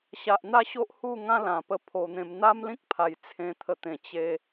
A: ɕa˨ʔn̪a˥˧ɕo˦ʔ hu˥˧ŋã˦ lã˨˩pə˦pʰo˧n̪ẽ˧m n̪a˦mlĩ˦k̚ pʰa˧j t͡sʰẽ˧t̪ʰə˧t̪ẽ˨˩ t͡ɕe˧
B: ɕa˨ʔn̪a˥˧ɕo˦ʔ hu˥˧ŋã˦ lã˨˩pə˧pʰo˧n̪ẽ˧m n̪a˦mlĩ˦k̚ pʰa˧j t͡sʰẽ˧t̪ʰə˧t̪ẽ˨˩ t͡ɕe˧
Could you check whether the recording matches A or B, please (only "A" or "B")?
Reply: A